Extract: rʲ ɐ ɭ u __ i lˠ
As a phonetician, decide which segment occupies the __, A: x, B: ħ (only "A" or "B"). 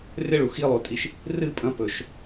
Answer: A